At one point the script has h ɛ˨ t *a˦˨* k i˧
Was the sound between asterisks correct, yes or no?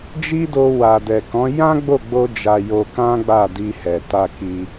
no